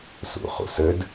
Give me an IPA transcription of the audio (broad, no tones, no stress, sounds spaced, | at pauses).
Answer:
s ṵ χ ṵ s ɘ d